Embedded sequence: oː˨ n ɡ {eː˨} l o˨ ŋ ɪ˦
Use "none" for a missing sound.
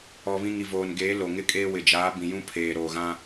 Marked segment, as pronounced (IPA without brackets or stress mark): eː˨˦